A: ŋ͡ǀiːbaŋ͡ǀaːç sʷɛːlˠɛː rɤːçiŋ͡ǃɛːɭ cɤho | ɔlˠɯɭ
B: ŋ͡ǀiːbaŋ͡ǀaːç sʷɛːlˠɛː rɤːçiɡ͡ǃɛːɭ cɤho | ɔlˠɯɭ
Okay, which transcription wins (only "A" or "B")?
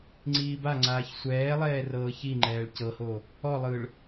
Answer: A